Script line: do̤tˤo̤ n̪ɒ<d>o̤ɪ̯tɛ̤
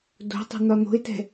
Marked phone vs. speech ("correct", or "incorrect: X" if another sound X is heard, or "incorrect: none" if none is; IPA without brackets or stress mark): incorrect: n̪